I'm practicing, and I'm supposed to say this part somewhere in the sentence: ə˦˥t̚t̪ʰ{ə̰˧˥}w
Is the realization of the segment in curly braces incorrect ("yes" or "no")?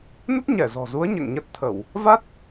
yes